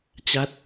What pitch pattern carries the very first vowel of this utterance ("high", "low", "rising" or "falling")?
falling